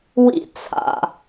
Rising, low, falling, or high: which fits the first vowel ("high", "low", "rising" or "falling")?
high